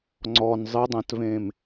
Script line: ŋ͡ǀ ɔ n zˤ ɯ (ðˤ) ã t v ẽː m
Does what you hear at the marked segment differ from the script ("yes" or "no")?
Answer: yes